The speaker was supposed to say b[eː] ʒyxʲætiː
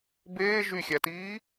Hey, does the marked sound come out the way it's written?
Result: yes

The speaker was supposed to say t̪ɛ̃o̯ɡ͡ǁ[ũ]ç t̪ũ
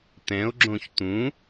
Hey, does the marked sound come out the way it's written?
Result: no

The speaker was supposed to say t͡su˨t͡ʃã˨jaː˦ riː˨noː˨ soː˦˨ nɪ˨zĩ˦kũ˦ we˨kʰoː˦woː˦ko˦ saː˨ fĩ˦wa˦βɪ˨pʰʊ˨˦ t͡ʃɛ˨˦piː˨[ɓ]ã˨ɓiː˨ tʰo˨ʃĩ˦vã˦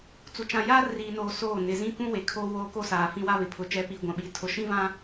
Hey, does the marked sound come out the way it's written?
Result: no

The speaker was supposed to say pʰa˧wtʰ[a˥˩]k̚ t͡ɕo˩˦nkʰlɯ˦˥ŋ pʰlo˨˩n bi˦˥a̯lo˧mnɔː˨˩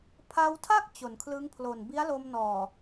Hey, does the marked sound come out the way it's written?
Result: yes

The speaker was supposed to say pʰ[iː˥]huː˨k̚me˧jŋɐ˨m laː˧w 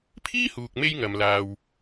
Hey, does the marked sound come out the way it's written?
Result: yes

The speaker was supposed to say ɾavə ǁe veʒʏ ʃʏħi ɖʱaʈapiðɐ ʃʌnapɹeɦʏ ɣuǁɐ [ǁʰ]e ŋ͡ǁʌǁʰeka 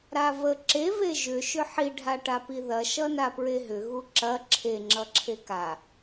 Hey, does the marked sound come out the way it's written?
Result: yes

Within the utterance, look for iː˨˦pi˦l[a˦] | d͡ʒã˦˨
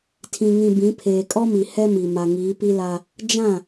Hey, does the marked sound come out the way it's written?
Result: yes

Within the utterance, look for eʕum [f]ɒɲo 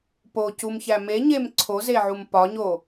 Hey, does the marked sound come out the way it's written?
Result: no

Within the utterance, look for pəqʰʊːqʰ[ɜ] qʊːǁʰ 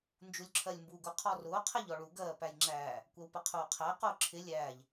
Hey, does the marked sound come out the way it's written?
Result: no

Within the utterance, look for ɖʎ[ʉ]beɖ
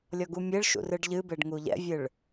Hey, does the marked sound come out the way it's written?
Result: no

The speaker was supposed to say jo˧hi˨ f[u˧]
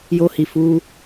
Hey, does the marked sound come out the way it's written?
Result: yes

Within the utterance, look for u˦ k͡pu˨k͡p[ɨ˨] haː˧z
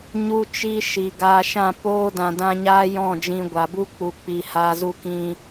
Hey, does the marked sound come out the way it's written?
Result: no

